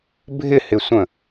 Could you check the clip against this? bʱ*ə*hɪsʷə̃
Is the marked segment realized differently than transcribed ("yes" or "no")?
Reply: yes